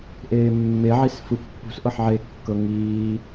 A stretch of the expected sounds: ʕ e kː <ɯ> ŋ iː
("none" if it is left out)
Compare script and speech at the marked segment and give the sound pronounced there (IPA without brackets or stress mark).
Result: ɤ